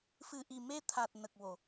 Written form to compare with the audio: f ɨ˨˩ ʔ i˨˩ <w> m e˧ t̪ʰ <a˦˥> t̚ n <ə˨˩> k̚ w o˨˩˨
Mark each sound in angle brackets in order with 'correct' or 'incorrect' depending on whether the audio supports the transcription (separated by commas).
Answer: incorrect, incorrect, correct